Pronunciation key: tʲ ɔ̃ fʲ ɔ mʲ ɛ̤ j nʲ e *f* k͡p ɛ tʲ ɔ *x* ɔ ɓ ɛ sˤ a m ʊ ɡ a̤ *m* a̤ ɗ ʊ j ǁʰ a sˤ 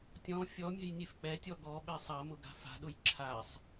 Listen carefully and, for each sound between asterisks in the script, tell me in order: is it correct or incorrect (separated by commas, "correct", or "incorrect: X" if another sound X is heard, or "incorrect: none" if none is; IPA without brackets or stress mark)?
correct, incorrect: ɡ, incorrect: f